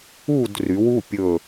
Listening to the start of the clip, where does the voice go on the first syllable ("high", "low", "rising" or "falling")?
falling